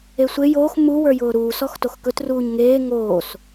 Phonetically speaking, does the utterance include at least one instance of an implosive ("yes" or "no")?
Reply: no